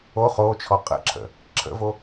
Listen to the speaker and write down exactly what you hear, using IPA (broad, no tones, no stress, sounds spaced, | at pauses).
o χ o t͡ʃʰ ɔ qʼ ə̰ ǁʰ ə̰ | ǁʰ ə̰ v o